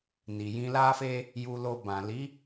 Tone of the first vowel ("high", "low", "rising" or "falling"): low